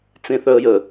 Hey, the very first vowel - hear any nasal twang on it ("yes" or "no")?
yes